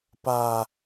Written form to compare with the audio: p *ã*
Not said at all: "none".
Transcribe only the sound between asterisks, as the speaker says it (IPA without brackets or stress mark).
a